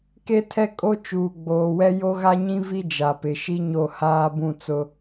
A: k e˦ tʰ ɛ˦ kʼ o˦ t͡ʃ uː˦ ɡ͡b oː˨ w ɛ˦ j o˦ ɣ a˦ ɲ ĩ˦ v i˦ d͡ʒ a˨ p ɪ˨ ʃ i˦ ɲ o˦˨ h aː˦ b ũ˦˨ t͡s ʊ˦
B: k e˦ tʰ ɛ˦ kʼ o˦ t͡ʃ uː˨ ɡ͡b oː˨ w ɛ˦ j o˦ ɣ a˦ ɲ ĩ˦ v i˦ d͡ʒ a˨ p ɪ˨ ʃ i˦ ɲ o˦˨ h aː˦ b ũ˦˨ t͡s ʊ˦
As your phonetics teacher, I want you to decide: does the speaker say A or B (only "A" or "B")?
B